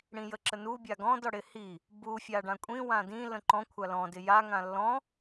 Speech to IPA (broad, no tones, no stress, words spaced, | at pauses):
ɽĩjəǁənu bʲaɡɔ̃d ɔɽɪhi | bu fʲaɖãkʷʼĩ wãdĩ lə̃ǃɔ̃ kʷʰalɔ̃ dɪja ŋãlːɔ̃